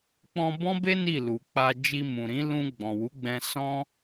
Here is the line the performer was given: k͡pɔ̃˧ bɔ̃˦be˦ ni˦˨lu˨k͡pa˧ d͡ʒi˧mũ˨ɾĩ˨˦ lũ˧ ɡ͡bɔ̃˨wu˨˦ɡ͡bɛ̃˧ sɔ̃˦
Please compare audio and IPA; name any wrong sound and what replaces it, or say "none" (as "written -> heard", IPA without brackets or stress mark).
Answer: none